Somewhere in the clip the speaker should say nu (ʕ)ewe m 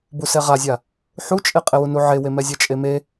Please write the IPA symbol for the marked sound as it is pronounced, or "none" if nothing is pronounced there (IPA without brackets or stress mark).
ʕ